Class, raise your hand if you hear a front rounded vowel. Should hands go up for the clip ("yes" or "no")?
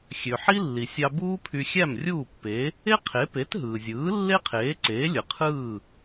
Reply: yes